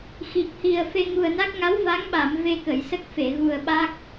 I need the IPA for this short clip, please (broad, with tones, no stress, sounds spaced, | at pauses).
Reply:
x i˨˩ k̚ h i˨˩ ə̯ f e˧ ŋ u˨˩ ə̯ n a˦˥ k̚ ŋ a˧˥ w v a˧˥ ŋ ɓ a˨˩˨ m v e˧ k ə˨˩˨ j s ə˦˥ k̚ f e˨˩˨ ɣ u˨˩ ə̯ ɓ a˦˥ k̚